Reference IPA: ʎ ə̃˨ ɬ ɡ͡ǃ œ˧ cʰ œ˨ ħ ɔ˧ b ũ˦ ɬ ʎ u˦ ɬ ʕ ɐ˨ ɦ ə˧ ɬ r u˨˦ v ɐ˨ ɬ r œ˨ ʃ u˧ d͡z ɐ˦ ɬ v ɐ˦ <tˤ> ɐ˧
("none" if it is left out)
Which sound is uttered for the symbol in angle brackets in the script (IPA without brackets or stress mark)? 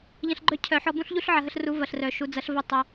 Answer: tˤ